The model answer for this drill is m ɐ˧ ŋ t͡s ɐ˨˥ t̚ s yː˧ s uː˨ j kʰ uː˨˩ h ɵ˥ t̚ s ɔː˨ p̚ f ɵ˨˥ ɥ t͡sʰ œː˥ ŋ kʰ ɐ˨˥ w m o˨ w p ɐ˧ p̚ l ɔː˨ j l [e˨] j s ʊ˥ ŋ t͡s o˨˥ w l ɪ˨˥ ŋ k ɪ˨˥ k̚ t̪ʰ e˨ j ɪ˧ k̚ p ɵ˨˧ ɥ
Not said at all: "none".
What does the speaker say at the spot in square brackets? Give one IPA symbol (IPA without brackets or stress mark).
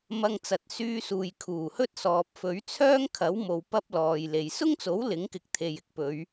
e˨